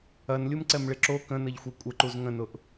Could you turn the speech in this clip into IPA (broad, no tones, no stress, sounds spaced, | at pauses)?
ɐ n lʲ u m ǀ ɛ m ɭ ɪ ǁ o k ə̃ n ɐ ʎ xʷ ɛ kʷʼ ə ǃ u z ŋ ə̃ n ʊ ʔ